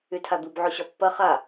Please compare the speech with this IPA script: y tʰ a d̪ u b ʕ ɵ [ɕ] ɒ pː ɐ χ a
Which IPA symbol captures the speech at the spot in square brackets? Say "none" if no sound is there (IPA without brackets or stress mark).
ɕ